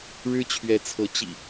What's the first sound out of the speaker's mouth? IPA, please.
ɻ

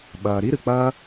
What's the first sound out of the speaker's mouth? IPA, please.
ɓ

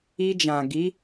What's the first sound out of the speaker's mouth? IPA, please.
i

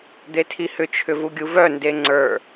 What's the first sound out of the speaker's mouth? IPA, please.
d̪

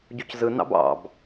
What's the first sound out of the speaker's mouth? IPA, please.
ɟ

